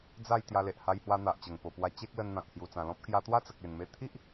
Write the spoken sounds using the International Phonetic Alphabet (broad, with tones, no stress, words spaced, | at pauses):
d͡za˥˧j t̪ja˧le˨ʔ ha˧jhwa˧n̪a˨ʔt͡ɕə˨˩ŋ po˨˩pwa˧ t͡ɕe˦k̚lə˧nn̪ã˨k̚ hju˨˩t͡sã˨˩lɔ̃˦p̚ kja˧ t̪wa˦t͡sə˨k̚ e˨˩nme˧t̪ʰi˦ʔ